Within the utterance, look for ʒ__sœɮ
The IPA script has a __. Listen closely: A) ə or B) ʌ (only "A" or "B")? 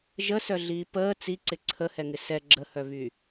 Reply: A